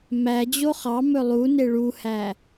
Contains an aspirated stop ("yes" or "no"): no